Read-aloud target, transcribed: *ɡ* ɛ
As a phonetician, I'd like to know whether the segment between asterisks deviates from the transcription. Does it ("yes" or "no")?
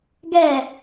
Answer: no